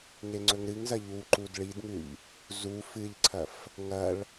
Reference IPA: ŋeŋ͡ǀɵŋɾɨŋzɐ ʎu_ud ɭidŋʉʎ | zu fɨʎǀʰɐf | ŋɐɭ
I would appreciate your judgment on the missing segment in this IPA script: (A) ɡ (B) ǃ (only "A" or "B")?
B